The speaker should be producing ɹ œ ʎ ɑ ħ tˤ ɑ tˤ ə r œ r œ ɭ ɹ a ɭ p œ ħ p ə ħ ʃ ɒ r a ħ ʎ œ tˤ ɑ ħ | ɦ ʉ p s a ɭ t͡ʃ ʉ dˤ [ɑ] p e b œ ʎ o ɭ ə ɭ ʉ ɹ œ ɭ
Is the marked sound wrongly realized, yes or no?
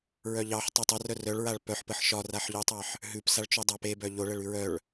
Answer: no